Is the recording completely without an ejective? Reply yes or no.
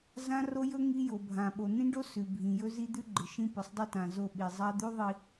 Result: yes